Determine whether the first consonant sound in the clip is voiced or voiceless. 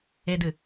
voiced